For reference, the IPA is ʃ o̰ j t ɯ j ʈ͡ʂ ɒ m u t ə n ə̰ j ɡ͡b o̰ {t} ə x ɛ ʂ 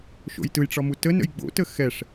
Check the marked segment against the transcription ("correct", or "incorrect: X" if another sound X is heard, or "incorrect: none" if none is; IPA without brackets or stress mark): correct